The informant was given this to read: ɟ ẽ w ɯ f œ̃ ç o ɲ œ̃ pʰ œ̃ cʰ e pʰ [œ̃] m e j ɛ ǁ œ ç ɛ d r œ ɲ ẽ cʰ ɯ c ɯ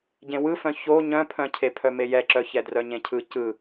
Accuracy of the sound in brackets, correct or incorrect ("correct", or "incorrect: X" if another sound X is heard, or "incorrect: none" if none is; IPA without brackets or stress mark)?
incorrect: œ